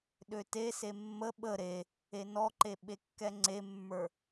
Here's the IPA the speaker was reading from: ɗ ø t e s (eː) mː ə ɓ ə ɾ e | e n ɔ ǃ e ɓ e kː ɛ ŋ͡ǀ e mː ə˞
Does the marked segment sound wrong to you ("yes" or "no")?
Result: yes